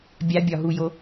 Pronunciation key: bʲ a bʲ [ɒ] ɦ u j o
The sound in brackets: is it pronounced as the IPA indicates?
yes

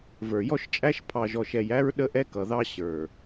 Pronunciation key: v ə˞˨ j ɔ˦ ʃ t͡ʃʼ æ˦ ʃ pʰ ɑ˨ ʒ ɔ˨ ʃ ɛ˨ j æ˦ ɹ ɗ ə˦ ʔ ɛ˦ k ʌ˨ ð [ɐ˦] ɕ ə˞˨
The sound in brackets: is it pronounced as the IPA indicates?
no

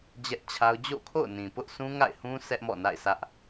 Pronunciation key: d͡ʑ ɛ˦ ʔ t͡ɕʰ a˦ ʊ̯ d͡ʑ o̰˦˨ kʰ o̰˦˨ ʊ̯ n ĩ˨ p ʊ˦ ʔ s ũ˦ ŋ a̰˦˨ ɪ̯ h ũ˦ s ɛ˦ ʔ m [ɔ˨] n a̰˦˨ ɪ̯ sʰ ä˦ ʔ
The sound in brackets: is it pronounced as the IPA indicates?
no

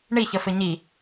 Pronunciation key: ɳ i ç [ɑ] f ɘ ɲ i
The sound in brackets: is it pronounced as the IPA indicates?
no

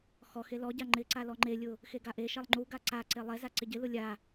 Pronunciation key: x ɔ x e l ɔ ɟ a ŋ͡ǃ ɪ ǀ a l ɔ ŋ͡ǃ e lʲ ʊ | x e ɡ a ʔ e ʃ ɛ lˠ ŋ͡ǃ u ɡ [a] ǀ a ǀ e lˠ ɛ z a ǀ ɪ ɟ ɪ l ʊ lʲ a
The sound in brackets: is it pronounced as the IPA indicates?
yes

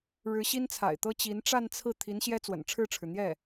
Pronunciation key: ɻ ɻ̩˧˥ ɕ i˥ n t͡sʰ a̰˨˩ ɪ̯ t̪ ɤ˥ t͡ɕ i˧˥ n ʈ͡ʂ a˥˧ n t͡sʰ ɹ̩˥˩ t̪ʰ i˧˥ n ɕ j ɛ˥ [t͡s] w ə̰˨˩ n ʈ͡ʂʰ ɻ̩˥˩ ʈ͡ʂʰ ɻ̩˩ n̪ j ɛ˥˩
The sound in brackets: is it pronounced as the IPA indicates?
yes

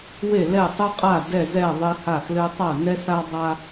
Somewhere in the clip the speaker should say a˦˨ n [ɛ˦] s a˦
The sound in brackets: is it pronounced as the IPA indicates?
yes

